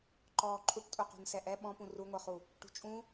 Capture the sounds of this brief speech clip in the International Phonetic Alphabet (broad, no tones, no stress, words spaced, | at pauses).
ǃɔːǃʰuʈtʼuqṳn sɛʔɛ ɓɔ̃pũ ruŋʷə˞χu | ʈṳt͡ʃʼũ